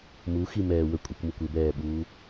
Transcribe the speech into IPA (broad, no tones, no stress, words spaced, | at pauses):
muximɛː wə kʷʼɪkʷmukʷ ɪbɛːɓuː